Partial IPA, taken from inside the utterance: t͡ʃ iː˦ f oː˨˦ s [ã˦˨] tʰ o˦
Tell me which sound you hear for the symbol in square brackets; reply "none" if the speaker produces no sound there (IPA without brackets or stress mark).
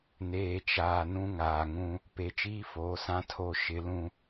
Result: ã˦